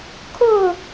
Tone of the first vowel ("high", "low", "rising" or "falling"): falling